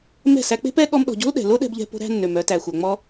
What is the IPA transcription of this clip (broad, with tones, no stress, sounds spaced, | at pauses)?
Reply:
m ɛ̤˦˨ s æ˧ k͡p e̤˦ p ɛ˦ ɠ ɔ˦ m ɗ ɔ̤˧ ɟ o̤˦ l ɗ ɛ̤˨ l o˦ ɗ ɛ̤˧ b ʎ ɛ̤˧ p o̤˧ ɾ æ̤˧ nː ø˨ m œ˧ t æ˨ xʷ œ˨ ŋ͡m ɔ˦